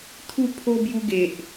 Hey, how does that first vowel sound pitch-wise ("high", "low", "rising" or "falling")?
falling